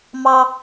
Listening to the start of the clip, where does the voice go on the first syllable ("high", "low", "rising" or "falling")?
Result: high